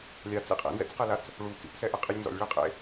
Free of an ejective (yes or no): no